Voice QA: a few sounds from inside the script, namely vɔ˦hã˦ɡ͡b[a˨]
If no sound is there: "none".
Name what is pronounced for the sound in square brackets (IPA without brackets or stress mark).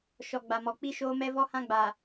a˨